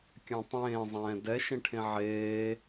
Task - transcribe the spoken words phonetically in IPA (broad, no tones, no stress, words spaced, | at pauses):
kʲãtˤẽː zˤɛ̃ːdɛ ʃẽʈʰẽʕeː